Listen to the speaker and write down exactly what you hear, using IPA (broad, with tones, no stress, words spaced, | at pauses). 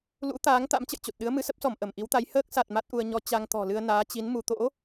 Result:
lṵ˧˥t̪aː˨˦ŋ t̪a̰˧˥mt͡ɕə̰˧˨jt͡ɕo˨˩t̚ɗɨ˨˦ə̯ mɨ˨˦sə˦˥p̚sɔ˧˩m ʔə˧˩mʔi˨˦wt̪a˨˦j həː˦˥k̚sa˨˩t̚ ma˦˥t̚ʔu˧ə̯ ɲɔ˨˦ t͡ɕa˧ŋt̪ɔ̤˨˩lɨ˧ə̯ naː˨˦t͡ɕi˨˦n mu˧ t̪o̰˧˥